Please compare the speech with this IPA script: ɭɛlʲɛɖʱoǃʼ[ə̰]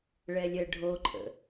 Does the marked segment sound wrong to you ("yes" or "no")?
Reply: no